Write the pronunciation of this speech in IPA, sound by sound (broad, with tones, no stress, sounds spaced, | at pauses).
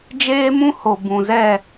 d͡ʒ eː˦ m ũ˦ h o˨ b ũ˨ z ɛ˦˨